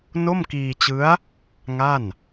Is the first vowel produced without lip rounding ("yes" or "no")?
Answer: no